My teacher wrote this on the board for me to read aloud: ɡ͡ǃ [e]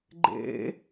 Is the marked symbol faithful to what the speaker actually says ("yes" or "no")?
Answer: no